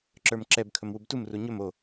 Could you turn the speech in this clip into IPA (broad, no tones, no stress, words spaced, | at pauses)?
ǁə˞mǁɛb kʰɵmwubtum ruɲɵm o